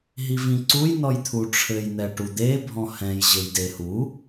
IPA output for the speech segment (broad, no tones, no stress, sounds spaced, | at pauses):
ɦ i v ĩ ǀ u j n ɔ j t̪ʰ u ʈ͡ʂʰ ɘ j n̪ ɛ ʈ u d̪ e bʱ ɔ̃ h ɛ̃ j ʑ ɘ j d e h u